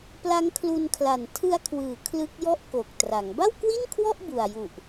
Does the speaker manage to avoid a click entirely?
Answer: yes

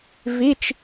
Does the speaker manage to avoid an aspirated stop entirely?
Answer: yes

